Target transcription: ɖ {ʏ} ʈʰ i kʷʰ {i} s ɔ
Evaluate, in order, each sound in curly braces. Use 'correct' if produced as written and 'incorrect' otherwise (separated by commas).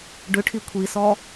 correct, correct